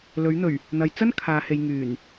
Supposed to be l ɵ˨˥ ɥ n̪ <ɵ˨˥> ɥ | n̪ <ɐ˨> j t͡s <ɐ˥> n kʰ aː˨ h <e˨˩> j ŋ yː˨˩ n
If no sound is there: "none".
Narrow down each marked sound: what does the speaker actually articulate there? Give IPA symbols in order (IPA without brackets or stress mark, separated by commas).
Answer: ɵ˨˩, ɐ˨, ɐ˥, e˨